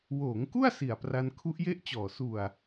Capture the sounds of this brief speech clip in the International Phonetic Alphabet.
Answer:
w oː˩˦ ŋ k u˥˩ a̯ s i˨˩ a̯ p r a˧ n kʰ u˦˥ ʔ j e˥˩ ʔ t͡ɕ ɔː˨˩ s u˨˩ a̯

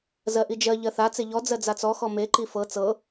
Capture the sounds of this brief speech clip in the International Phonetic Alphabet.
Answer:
z ɜ ʔ i d͡ʒ ɜ ʎ ɜ θ a t͡s e ʎ ɔ d͡z ɜ d͡z a t͡s ɔ x ɔ m e ǃ i f ɤ t͡s ɤ

